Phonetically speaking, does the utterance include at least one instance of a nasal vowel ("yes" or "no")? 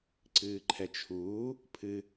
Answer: no